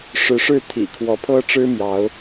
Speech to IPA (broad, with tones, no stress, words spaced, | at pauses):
ʂɻ̩˨˦ʂɻ̩˥˨ t̪ʰḭ˨˩kʰwɔ˨˦pʰɤ˦ʈ͡ʂɻ̩˦ mjɑ˨˦ʊ̯